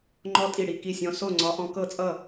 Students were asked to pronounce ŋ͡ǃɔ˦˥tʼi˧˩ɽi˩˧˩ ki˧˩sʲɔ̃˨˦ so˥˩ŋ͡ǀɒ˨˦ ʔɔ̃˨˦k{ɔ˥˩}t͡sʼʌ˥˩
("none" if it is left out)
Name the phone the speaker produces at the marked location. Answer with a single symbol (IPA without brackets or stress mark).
ɤ˥˩